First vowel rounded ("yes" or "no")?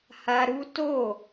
no